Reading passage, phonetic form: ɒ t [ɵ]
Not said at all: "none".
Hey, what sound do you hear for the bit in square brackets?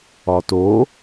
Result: o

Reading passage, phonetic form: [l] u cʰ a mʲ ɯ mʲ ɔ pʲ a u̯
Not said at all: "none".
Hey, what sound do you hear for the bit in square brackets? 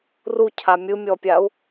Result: r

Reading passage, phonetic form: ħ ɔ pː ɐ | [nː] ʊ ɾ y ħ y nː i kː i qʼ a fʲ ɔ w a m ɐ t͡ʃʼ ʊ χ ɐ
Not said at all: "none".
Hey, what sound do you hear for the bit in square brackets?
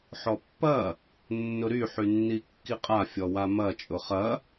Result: nː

